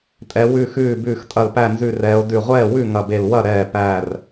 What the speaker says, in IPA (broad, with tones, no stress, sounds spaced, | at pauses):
tʼ ɛ˩˧ w ʉ˧˩ x ʉː˧˩ b ʉː˧˩ x tʼ ɐ˧˩ l p æ˧˩ n z ʉ˧˩ r ɛː˩˧ o̯ d ʉ˧˩ ʁʷ ɛː˥˩ w ʉ˥˩ ŋ ɐ˧˩ b e˧˩ l w ɐ˥˩ ɾ ɛː˧˩ p æː˧˩ r